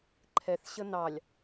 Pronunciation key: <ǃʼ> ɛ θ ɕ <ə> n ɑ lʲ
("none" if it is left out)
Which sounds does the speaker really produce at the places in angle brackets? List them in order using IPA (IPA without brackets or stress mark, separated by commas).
ǃʰ, ə